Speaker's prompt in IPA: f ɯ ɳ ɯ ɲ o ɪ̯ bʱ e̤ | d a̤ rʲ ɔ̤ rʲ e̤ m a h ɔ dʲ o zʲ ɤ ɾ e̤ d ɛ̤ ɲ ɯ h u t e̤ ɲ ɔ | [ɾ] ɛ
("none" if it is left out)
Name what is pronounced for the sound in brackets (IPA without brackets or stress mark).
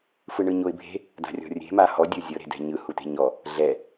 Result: ɮ